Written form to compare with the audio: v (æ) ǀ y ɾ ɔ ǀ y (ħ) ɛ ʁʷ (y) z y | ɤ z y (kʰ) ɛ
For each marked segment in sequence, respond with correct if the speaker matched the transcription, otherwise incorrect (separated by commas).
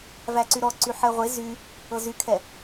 correct, correct, incorrect, correct